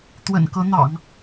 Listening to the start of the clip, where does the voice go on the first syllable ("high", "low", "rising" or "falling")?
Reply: low